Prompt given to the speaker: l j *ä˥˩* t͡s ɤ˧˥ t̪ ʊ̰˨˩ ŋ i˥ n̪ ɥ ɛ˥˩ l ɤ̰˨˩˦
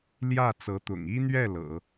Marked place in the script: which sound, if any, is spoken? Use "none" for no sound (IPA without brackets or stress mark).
ä˥˩